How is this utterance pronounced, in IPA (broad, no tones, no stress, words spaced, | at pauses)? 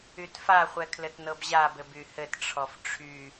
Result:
ytfaχʷɛ kʰlɘtnɤbʑabɘb yhɘtʈ͡ʂʰɔf ʈ͡ʂʰy